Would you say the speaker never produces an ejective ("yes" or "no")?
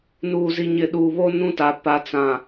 yes